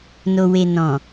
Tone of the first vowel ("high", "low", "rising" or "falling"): low